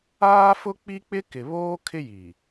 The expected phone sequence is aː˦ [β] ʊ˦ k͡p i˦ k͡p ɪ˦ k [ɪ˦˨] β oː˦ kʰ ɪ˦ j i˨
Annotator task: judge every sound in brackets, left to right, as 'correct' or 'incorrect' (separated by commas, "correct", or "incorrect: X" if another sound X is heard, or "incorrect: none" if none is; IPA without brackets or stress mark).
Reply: incorrect: f, incorrect: ɪ˨